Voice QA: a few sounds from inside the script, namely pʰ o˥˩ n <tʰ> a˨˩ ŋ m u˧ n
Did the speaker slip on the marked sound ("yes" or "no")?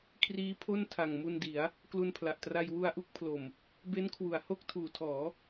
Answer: no